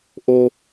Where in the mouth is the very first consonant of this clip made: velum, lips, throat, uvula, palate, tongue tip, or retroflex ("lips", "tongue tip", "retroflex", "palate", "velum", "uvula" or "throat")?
throat